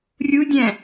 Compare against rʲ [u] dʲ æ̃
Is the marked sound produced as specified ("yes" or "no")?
yes